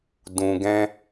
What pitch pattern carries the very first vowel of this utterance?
low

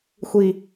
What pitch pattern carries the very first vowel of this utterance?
low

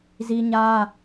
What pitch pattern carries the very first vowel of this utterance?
high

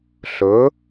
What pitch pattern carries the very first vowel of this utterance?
rising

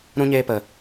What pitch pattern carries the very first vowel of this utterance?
high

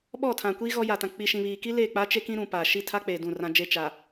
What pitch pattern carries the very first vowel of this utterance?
falling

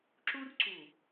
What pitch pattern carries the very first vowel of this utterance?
high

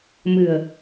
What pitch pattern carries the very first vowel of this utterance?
low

